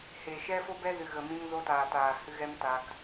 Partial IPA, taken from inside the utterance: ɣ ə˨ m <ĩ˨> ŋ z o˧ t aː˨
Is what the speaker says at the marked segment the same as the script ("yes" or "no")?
no